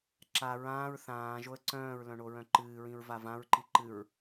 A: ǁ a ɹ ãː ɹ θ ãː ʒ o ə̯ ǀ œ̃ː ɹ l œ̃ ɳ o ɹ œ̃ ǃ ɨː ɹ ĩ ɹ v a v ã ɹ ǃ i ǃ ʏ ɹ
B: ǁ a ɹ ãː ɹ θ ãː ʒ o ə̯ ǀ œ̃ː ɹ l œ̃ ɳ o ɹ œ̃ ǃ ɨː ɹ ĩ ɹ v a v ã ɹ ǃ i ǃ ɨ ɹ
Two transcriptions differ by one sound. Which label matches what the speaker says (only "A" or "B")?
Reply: B